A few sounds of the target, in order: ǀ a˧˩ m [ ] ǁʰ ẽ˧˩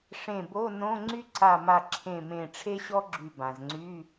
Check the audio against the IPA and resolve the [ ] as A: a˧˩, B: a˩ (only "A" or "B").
A